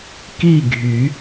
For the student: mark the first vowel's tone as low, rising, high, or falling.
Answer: falling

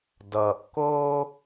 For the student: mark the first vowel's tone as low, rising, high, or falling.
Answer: low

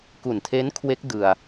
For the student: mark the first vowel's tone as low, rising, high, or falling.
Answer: low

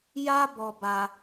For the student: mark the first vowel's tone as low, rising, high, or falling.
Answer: high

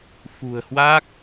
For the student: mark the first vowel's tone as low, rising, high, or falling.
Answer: low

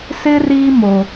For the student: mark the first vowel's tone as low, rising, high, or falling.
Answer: high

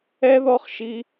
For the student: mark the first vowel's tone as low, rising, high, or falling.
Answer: high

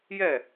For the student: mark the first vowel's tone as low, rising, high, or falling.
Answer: falling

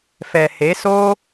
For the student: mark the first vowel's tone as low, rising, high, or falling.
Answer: low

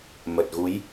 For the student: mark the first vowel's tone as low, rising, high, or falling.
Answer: low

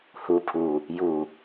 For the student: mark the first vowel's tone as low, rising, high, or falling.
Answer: low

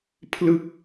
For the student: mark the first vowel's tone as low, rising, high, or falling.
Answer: falling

